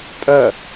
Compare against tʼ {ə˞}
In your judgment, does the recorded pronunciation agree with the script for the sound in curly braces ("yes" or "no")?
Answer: no